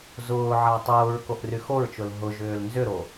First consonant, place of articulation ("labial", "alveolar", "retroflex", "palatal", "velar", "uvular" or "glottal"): alveolar